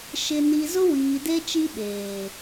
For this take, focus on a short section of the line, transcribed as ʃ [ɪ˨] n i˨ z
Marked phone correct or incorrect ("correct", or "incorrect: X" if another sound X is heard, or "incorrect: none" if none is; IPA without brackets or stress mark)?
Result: correct